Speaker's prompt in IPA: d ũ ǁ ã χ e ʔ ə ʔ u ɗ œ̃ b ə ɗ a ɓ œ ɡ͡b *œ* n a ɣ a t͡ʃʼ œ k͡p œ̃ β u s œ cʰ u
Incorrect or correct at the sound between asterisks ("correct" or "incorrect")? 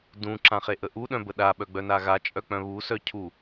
correct